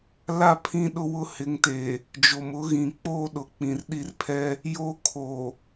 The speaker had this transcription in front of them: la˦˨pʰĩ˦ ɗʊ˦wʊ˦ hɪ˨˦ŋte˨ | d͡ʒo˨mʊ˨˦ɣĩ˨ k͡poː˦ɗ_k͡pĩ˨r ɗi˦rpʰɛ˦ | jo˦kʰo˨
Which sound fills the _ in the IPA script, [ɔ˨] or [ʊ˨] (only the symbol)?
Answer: ʊ˨